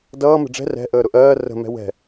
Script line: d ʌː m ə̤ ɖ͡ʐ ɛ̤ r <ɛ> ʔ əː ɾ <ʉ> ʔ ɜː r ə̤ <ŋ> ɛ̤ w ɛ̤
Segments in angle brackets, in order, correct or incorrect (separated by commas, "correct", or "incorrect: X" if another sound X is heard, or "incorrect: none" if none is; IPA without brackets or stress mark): incorrect: ɛ̤, incorrect: ʊ, incorrect: m